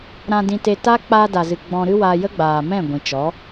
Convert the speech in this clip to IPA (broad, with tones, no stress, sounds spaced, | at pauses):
ɾ ã˧ d ĩ˧ t e˧ t a˦ k͡p aː˧ d a˨ z ɨ˨ ɡ͡b ɔ̃˧ ɾ ɨ˦ w a˧ j ə˦ ɡ͡b aː˨ m ɛ̃˦˨ ɡʷ ĩ˨ t͡ʃ ɔ˨˦